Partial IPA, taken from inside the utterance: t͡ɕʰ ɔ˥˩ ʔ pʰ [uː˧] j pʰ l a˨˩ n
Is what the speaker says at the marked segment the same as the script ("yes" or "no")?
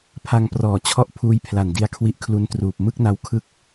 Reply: no